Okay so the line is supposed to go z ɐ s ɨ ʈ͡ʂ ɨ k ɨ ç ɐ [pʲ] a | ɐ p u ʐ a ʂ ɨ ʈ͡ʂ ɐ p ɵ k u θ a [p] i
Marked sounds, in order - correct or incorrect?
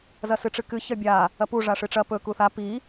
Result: incorrect, correct

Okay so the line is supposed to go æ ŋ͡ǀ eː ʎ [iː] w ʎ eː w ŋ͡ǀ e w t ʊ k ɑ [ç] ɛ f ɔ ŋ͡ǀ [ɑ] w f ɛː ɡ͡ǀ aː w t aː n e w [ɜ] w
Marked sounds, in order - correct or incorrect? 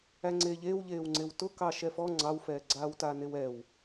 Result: incorrect, incorrect, correct, incorrect

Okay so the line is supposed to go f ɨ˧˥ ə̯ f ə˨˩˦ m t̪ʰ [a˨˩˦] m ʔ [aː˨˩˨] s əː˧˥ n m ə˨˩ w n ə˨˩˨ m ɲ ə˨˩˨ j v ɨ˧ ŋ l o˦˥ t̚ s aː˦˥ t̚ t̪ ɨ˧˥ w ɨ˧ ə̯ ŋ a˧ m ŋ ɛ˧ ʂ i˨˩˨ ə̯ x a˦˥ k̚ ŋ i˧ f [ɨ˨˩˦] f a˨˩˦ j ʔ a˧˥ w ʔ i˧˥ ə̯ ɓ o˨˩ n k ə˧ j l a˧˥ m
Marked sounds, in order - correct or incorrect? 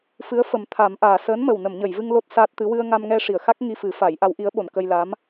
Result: correct, correct, correct

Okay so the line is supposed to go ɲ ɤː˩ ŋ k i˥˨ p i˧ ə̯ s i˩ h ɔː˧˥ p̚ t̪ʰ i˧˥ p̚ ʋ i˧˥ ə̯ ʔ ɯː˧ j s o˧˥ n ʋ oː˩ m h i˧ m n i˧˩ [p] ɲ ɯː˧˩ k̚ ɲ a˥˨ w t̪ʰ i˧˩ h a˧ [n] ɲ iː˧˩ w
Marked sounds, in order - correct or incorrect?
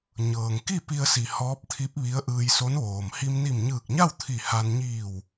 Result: incorrect, correct

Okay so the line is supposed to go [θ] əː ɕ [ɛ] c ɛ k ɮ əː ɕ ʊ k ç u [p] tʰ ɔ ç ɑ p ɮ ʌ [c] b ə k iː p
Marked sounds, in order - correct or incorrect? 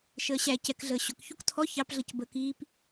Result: incorrect, incorrect, incorrect, correct

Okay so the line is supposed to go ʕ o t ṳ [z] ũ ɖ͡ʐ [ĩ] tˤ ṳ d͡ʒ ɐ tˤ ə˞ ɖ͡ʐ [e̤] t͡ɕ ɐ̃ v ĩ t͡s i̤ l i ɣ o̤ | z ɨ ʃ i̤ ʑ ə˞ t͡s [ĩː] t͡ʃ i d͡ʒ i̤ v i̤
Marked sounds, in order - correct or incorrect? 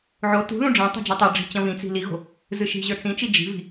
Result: incorrect, correct, incorrect, incorrect

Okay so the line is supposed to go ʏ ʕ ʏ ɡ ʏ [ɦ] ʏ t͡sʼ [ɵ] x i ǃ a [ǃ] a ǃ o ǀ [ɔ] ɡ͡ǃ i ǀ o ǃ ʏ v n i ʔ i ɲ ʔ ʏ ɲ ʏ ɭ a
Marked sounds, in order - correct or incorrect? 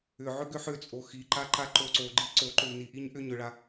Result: incorrect, incorrect, correct, incorrect

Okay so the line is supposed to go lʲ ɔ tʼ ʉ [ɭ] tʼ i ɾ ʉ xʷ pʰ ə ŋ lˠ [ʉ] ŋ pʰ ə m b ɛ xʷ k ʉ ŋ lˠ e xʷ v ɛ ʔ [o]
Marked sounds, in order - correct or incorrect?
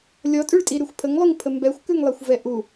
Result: correct, correct, incorrect

